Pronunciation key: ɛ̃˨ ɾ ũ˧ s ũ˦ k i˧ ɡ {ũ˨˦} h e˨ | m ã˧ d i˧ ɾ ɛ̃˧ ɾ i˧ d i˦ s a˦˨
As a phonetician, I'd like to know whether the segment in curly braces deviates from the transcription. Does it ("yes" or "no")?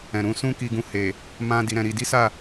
yes